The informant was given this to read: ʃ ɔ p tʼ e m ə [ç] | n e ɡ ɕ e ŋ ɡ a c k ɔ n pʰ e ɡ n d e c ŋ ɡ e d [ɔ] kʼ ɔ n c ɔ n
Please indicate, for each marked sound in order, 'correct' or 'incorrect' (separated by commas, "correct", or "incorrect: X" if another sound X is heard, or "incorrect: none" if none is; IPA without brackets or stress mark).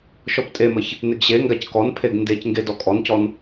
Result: correct, correct